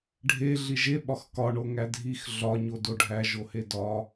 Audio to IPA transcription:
ɖʱ e ɮ i ʒ e ɓ ɒ x k ɒ ɳ o ŋ æ dʱ i x ɮ ɒ ɲ o d o ɖʱ æ ʒ o h e d ɒ

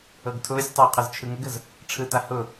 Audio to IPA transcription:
ɤ ɡ tʰ ʊː sʲ tˤ ʊː qʰ ɛ z t͡ʃʰ ɯ ŋ ə ɡ ə z | ʈ͡ʂʰ ɯ t a h ʊ

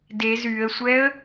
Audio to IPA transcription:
d e z y ə̯ sʷ ɛ ə̯

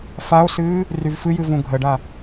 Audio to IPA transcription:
f a o̯ s ɨː | r y v f ɨ j ɨ v ũ ɡʱ ə ɖ a

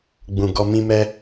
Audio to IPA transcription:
ɡ͡b ũ˨ ɡ ɔ˧ m ĩ˦ m ɛ˦

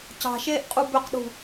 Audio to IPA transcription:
c ɑ̤ ʃ eː ʔ qʼ u b ʏ q ɗ ṳ

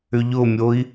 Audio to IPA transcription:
ʏ ʎ ʊ mʲ o i̯

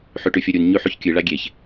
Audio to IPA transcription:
ħ ʉ ʈ ʉ fʲ o ɾʲ u n ɲ ʉ ħ ʉ ç kʲ ɨ ɭ a ɡʲ e ç

